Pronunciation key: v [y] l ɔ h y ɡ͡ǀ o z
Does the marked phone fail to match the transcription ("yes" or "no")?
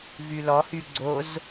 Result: no